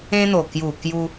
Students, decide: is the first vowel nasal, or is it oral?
nasal